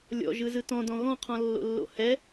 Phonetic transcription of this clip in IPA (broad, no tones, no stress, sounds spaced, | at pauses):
lʲ ɔ̰ ʒ ɯ z ɯ t ɔ̃ d ɔ̃ ɣ ɔ̃ qʰ ɔ̃ lː o̰ lː o̰ h ɛ